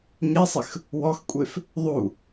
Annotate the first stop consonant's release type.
ejective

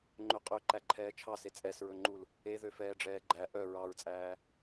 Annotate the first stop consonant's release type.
click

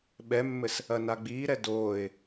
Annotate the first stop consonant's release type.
implosive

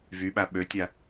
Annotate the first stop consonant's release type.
implosive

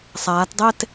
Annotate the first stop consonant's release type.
plain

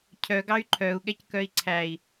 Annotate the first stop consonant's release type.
aspirated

